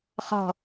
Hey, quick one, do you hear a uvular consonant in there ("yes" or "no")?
yes